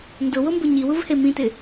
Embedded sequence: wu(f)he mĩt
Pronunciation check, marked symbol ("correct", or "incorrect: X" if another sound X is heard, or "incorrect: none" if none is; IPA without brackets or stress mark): incorrect: v